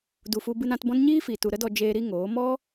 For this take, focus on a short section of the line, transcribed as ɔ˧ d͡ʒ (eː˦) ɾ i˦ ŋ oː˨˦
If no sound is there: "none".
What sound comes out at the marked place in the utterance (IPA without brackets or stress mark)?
eː˧